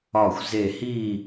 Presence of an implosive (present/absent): absent